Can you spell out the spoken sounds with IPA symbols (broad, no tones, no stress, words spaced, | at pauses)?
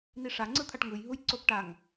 niʂaŋ͡ǀɯt̪ʰaʈ ŋɯjɦuj ǀopʈaŋ